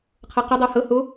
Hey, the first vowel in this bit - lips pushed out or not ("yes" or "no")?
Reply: no